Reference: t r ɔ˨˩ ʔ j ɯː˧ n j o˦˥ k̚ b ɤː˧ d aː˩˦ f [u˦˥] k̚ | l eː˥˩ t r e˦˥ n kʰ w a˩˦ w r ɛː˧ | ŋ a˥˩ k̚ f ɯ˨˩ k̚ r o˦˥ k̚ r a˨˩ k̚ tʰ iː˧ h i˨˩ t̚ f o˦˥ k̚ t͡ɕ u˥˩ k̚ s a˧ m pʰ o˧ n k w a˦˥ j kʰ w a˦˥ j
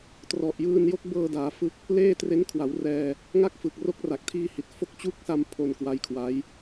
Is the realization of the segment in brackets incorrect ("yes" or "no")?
yes